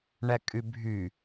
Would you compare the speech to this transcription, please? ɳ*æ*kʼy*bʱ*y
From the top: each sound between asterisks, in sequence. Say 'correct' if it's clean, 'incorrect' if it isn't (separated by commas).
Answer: correct, correct